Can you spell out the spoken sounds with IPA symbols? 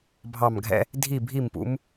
bʱ ɑ˦˨ m ɡʱ ɛ̰˥ | dʱ i˦˨ bʱ i˦˨ m p ṵ˨˦ m

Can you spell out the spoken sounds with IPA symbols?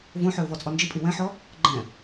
v õ ħ ø ʊ̯ v ɔ t͡sʼ ɔ n d͡ʒ i pʼ i w ɛ̃ ħ ɔ | ɡ͡ǃ ɛ̃

